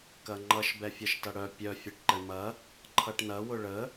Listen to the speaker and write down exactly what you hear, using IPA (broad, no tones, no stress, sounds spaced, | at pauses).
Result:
k ɐ ŋ͡ǃ ʌ ʃ b ɛ fʲ ʌ ʃ t ʌ ɽ œ pʲ œ fʲ e ʈ ǃ ɛ ɳ m ɐ | ǃʰ ʌ ʈ n ɐ w ʊ ɭ ə